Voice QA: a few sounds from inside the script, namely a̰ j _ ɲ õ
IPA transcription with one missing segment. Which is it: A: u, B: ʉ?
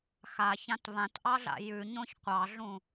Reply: B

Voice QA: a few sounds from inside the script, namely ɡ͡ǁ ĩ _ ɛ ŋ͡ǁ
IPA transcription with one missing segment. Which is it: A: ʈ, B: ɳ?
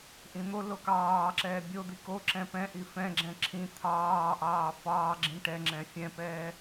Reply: A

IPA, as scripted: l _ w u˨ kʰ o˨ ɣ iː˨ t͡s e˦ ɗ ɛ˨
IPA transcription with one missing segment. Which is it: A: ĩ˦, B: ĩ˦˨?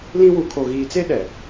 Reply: A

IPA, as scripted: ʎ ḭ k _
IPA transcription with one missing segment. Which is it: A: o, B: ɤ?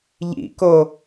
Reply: A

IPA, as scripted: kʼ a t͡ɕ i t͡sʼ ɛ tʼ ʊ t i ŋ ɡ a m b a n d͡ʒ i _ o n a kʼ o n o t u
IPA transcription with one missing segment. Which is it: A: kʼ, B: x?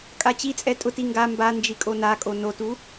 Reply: A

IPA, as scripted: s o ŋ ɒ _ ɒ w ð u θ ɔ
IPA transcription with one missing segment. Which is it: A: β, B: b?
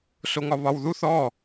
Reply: A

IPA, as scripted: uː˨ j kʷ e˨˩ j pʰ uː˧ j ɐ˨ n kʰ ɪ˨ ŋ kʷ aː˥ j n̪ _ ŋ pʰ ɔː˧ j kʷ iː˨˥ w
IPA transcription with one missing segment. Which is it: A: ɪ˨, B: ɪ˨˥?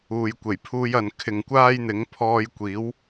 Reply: B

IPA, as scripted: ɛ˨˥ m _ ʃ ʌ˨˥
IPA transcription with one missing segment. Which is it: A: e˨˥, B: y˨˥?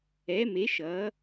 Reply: A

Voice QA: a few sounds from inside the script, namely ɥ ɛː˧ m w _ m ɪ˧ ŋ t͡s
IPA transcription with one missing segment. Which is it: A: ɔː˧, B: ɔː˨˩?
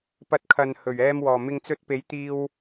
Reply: B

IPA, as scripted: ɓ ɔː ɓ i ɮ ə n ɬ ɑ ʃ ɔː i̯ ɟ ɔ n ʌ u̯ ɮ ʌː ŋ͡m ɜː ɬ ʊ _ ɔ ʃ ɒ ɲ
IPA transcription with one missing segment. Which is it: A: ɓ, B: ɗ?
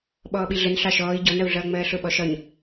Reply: A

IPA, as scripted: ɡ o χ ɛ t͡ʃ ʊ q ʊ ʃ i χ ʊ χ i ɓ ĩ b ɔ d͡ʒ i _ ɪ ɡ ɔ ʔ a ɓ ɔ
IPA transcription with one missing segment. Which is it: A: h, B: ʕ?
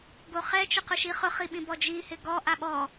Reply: A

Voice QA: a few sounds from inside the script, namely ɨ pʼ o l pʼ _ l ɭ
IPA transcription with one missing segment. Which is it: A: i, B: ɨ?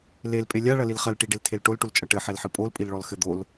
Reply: A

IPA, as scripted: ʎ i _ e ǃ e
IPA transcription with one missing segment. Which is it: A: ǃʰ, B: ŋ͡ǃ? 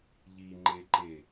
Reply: B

